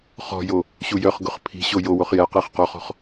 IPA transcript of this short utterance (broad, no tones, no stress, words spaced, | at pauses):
χɔ̤jo | ɕujœχɡʊχ pʰi̤ɕo jowoχ jɛ qeχqɔχɔ̤χ